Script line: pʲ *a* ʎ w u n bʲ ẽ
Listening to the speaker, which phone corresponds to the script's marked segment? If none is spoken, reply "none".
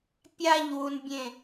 a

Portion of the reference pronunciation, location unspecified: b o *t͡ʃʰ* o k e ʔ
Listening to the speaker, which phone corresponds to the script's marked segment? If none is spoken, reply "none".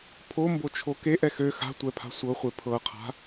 t͡ʃʰ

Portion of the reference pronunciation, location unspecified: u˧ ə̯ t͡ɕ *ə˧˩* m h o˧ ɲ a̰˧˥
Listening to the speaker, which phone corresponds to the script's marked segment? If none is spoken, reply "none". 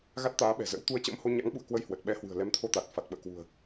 ə̰˧˥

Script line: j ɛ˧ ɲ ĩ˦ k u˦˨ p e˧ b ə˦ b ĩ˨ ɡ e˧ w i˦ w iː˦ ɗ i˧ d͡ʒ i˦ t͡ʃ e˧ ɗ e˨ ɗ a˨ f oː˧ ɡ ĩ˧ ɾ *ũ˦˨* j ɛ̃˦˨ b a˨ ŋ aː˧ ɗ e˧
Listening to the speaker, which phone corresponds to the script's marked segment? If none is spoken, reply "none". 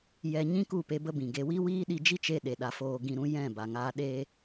ũ˦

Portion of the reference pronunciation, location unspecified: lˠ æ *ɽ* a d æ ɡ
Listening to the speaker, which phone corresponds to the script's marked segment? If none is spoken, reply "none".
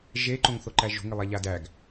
ʎ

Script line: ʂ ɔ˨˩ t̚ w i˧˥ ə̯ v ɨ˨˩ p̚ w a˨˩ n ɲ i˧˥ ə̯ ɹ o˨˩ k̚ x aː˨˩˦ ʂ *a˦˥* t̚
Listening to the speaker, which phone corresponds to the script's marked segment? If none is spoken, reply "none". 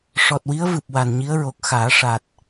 a˨˩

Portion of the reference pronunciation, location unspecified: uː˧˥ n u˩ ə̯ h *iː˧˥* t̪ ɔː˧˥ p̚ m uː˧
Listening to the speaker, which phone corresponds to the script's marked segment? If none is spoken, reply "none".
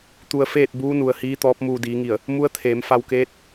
iː˧˥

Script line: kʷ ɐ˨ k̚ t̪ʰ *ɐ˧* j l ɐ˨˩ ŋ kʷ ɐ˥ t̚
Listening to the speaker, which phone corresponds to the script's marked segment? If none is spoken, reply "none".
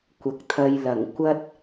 ɐ˧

